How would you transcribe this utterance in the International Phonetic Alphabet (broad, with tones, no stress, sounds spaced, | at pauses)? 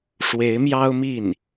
ʂ w e˧˥ ɪ̯ m j ɑ˥ ʊ̯ m i˥˩ n